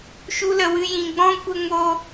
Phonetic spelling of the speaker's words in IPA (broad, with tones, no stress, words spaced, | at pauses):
ʃu˧lə˨wɨ˧ jĩ˨ɡ͡bɔ̃˦ kʷə˧ŋo˧